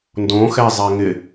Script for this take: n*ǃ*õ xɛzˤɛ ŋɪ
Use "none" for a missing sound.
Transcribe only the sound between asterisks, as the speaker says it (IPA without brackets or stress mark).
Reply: d